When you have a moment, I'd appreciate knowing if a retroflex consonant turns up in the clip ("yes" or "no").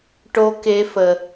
yes